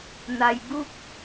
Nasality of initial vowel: oral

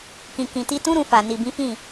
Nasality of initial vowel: nasal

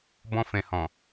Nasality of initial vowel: nasal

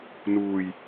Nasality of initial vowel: oral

